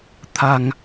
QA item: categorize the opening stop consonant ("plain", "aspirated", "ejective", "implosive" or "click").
aspirated